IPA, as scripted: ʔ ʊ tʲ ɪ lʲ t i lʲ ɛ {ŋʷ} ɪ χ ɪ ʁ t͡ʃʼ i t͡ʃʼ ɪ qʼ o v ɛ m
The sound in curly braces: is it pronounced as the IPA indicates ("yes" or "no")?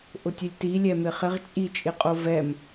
no